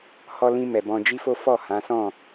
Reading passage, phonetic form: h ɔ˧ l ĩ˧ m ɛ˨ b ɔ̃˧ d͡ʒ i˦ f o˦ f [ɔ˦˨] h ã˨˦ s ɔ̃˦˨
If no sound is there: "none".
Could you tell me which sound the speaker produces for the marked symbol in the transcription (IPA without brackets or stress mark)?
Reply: ɔ˦˨